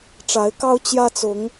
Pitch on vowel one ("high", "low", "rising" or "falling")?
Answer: rising